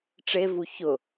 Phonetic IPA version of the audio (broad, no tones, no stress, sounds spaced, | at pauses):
ʈ͡ʂ e v u ç ʊ